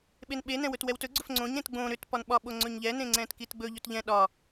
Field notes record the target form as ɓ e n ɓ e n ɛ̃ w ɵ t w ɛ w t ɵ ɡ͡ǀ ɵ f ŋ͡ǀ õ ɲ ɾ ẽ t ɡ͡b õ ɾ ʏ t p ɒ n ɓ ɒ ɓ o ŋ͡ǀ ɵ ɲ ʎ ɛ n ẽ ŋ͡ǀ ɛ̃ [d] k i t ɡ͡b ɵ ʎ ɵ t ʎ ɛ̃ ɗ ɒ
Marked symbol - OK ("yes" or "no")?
no